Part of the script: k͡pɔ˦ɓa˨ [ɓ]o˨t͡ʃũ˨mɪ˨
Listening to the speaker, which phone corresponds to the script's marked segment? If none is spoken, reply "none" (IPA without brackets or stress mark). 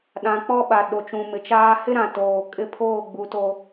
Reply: ɗ